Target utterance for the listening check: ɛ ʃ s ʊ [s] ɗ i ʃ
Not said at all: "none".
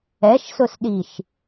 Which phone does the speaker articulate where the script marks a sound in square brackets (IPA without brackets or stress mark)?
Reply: s